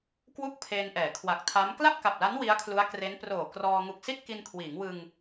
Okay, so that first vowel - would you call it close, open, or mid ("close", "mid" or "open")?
close